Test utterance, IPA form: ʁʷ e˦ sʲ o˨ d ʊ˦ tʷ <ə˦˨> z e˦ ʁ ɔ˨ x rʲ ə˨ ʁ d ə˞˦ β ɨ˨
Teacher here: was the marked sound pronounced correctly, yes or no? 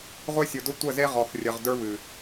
yes